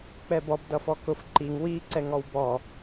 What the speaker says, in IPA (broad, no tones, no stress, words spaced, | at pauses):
k͡pɛbɔb dʌfɔkʊf ǃiŋ wi ǀɛŋɔwbɔ